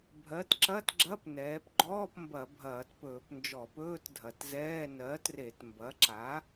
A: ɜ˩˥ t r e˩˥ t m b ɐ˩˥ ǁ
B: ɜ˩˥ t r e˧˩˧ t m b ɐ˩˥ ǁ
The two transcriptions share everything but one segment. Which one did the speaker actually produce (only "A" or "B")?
B